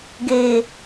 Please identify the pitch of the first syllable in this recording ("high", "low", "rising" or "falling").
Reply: low